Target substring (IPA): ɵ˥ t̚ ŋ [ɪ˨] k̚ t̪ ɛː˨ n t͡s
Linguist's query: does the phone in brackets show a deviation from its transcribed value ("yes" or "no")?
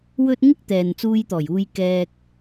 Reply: yes